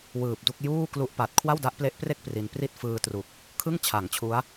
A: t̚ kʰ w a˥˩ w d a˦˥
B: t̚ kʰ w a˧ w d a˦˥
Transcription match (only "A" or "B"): A